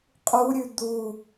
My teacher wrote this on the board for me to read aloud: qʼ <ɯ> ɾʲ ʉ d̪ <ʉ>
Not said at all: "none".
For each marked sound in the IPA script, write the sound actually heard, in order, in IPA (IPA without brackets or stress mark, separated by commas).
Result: u, u